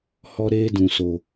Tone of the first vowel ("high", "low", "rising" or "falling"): high